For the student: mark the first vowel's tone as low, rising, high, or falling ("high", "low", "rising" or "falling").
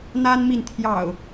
high